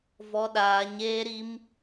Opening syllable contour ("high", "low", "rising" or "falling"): high